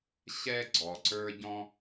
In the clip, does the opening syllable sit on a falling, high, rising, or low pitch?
high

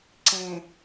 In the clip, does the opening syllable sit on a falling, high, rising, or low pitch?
low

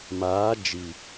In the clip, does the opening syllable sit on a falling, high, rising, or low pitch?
rising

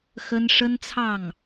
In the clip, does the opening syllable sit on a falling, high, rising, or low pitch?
high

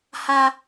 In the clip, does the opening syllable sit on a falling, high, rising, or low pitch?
high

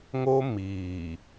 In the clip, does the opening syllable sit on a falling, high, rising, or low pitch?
high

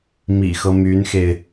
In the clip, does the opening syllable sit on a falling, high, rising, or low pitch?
low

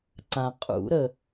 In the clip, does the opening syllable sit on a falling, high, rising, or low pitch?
low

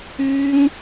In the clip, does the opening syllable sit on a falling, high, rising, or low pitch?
high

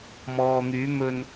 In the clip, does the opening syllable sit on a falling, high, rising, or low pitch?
low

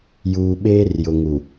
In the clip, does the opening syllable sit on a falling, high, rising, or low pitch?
low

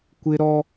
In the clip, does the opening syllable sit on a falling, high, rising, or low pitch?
high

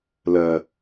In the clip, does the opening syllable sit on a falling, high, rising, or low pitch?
low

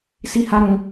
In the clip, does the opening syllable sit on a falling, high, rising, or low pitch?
high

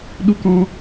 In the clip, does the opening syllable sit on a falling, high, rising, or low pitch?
high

